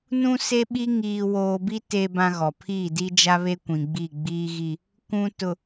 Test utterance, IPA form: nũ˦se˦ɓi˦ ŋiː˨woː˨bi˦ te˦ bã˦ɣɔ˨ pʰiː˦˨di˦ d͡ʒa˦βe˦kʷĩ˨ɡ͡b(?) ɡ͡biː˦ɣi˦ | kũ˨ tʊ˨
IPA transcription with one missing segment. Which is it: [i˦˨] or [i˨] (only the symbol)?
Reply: i˦˨